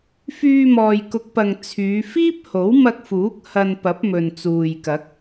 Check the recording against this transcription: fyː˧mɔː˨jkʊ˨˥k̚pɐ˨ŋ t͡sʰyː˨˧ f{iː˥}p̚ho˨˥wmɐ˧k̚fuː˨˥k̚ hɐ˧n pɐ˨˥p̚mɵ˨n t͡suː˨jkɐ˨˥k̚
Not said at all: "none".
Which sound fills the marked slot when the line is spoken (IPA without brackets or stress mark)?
iː˥